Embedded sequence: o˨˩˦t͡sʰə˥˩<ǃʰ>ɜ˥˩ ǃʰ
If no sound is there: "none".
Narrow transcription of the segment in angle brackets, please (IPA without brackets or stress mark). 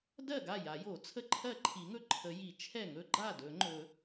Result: ǃʰ